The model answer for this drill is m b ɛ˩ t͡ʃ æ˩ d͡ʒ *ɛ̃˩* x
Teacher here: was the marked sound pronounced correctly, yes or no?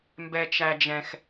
yes